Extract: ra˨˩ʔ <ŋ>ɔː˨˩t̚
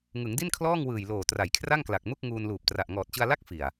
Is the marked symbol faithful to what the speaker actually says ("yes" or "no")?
yes